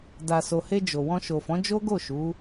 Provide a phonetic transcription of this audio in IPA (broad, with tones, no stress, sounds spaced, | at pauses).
d a˨ s o˨ h e˧ d͡ʒ o˨ w ɔ̃˧ ʃ o˨ f ɔ̃˨˦ d͡ʒ o˦ ɡ o˦˨ ʃ u˨˦